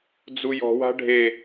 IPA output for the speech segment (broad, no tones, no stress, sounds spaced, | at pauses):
d͡z u j ɔ̤ w a̤ ɖʱ e